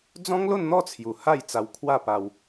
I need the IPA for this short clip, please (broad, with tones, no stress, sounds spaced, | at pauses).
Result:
d͡z ɔ̃˦ ŋ l o˥˧ n n̪ ɔ˥˧ t͡sʰ j u˨˩ h a˥˧ j t͡s a˧ w kʰ w a˥˧ p a˧ w